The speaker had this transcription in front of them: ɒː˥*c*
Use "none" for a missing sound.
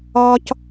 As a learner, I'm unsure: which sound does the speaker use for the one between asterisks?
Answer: c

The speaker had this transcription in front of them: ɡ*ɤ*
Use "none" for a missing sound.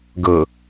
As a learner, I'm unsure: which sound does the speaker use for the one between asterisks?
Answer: ɤ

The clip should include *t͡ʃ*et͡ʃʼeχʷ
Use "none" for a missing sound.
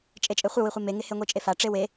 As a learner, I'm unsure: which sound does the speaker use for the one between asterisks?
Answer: t͡ʃʼ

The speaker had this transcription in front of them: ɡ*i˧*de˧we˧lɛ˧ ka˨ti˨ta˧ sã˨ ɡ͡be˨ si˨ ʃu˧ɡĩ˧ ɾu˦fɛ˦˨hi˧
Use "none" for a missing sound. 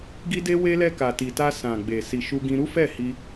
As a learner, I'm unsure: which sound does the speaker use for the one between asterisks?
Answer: i˧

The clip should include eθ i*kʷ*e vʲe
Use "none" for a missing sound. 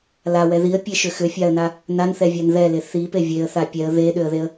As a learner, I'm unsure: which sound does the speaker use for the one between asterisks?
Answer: p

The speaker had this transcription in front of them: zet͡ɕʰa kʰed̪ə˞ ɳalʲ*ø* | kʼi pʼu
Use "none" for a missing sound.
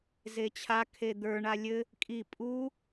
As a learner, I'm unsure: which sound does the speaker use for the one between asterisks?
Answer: ɘ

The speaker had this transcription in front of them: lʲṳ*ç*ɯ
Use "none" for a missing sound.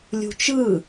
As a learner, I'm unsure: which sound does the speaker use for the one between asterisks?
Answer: t͡ʃ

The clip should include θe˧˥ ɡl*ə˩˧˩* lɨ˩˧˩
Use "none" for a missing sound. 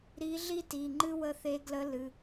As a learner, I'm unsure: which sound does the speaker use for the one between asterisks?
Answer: ə˧˥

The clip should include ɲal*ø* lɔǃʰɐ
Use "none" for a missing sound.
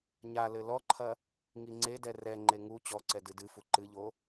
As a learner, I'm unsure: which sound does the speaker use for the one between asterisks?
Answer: ɘ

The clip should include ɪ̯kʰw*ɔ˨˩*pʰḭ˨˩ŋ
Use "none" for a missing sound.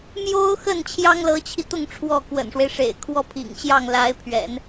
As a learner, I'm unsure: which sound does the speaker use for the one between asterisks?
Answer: ɔ˥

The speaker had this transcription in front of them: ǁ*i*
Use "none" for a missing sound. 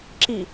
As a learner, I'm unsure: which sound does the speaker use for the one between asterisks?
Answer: i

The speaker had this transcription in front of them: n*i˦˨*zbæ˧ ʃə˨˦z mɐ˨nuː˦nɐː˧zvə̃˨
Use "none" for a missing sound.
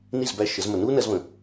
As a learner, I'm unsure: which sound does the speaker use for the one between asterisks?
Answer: i˦˨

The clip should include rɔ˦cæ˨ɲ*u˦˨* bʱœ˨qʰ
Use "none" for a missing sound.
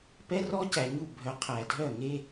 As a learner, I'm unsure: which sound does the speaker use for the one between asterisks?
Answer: u˦˨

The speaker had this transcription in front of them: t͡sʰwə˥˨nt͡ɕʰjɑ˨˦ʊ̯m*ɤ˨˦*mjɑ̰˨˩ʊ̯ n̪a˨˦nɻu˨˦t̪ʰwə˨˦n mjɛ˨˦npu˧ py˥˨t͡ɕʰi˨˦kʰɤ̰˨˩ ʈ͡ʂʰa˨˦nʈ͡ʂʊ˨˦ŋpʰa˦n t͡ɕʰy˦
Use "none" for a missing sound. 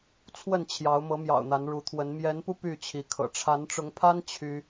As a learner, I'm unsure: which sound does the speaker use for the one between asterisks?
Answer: ɤ˨˦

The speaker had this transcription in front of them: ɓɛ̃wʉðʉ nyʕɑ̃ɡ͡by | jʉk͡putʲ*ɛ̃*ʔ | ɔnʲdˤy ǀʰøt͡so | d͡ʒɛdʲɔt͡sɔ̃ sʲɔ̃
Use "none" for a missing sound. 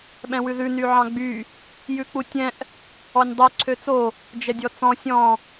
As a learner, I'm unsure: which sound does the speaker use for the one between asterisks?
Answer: ɛ̃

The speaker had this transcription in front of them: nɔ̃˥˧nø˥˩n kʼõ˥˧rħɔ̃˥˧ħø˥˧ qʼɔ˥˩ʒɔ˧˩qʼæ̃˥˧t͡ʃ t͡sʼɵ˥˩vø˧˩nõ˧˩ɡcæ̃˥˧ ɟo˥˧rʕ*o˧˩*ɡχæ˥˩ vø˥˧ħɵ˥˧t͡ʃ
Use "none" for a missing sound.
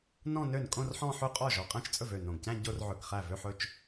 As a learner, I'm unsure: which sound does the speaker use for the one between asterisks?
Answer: ɵ˧˩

